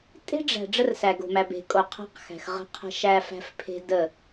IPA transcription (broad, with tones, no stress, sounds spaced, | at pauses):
tʼ e̤˦ ɖ͡ʐ æ̤˨ ɖ͡ʐ ə˦ r s æ˨ ɡ o̤˨ m æ˨ b e̤˨ kʼ o˨ qʰ æ̤˦ q x æ̤˨ x ʁ ə̤˦ qʰ ə̤˦ ʃ æ˦ f æ̤˦ f pʰ e̤˦ d ə˦˨